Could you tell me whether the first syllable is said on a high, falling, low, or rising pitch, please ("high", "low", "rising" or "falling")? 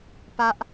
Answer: high